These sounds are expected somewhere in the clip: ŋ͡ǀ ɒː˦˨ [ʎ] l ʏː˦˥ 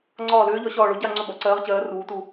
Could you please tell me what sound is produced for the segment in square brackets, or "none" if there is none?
none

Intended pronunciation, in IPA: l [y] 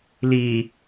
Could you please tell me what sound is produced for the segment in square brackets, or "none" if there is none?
i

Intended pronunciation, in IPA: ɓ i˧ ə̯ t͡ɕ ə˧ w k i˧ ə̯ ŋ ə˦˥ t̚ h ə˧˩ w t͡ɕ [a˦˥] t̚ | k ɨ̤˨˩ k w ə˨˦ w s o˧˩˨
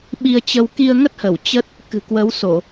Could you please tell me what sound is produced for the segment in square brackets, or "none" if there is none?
ə˦˥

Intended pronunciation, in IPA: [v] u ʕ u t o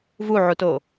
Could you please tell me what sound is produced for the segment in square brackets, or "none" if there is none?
v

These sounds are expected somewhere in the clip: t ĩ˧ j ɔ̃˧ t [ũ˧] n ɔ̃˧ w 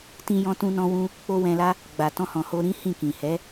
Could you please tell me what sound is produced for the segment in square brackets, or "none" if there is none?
ũ˧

